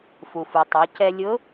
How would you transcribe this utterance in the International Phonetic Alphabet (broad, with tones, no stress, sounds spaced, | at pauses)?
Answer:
f u˩ f u˩ tˤ o˩˧ c ɛ˧ lʲ ʊ˧˥